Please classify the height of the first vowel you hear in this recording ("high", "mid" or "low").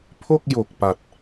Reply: mid